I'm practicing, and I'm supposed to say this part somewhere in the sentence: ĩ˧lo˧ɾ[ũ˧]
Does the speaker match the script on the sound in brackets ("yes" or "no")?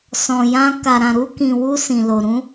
no